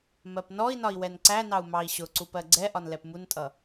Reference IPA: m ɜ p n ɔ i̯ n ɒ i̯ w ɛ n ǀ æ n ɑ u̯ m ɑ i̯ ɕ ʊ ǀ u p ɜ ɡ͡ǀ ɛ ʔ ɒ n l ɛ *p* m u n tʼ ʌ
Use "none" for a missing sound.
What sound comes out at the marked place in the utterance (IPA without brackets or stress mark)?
p